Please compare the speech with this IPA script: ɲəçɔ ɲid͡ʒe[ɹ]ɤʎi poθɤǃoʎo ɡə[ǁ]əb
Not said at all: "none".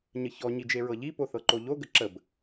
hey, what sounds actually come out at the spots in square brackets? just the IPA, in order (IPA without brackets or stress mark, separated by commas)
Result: ɹ, ǁ